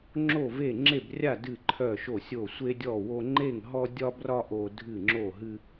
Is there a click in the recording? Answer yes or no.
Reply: yes